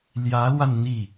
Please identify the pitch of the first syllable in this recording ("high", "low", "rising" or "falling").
rising